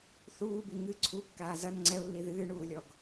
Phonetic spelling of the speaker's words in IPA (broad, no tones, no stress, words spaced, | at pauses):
θuːbi ŋɨ ǀʰukːaː zɐn ŋ͡ǀɛʊ̯lːi ðɨːɳuːlʲɔɡ